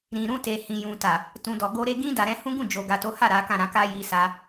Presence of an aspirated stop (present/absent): absent